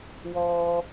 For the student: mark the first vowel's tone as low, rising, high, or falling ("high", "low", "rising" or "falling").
high